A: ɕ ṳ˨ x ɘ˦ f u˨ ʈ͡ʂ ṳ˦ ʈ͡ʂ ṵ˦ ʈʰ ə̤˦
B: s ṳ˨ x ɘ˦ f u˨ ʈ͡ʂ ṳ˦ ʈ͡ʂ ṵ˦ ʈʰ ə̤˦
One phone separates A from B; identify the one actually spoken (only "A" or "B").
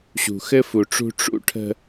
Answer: A